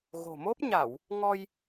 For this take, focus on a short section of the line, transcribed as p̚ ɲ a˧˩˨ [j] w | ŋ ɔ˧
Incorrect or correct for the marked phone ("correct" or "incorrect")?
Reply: incorrect